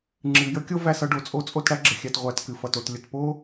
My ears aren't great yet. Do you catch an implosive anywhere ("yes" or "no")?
no